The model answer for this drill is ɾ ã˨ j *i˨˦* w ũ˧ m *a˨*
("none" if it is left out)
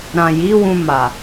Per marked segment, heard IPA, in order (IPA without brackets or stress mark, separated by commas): i˨˦, a˨